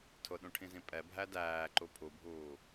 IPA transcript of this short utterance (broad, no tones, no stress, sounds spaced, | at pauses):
tʰ ʊ ɗ ũ ʈʰ ĩ z ĩ pʼ ɛ bʱ æ d æː ǃ u pʰ u bʱ uː